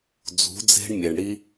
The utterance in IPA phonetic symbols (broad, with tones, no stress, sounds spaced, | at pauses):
d͡z ṳ˩˧ d͡z e̤˧ ɳ mʲ e˩ ɳ ɽ i˧